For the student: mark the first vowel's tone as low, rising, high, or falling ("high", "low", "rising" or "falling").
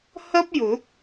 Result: high